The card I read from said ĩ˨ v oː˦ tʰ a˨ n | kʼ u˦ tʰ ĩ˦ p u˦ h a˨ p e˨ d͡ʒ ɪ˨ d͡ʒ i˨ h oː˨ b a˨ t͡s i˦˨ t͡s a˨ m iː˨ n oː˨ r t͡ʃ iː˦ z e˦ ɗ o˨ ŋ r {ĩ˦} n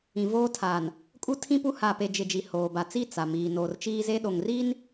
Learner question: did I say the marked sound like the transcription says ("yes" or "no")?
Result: no